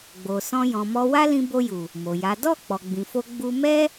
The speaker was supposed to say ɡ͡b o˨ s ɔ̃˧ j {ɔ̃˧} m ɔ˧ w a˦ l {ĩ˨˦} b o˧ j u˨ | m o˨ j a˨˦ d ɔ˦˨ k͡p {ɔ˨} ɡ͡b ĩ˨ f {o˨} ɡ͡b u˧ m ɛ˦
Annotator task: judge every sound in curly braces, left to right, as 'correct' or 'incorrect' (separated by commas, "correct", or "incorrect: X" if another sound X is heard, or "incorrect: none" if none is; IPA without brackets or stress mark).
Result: incorrect: ɔ̃˨, incorrect: ĩ˧, correct, incorrect: o˧